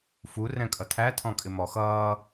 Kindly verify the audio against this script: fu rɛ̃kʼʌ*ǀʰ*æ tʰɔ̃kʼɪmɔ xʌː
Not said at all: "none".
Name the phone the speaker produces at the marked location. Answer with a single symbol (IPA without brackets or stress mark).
tʰ